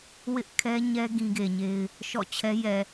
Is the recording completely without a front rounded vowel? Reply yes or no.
yes